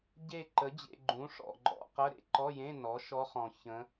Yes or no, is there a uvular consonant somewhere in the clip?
yes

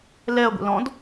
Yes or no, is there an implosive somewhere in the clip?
no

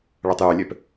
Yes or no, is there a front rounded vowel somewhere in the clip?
yes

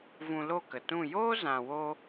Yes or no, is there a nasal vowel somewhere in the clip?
yes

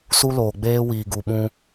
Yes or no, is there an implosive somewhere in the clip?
yes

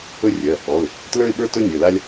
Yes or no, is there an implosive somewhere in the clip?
yes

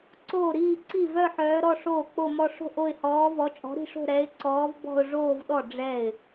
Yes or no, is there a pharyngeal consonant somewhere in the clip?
yes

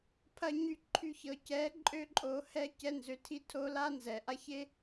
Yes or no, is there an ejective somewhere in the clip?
yes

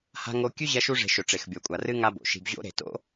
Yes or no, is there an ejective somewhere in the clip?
yes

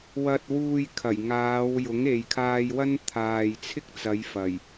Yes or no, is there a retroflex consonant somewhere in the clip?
no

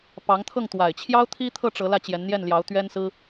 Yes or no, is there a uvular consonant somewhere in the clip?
no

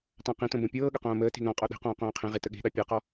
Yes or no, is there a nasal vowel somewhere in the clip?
yes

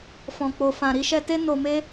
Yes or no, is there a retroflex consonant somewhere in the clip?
no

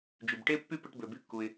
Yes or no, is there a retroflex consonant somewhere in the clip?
yes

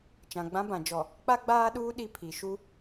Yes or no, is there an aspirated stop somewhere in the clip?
yes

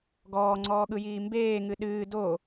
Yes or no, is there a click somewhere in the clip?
yes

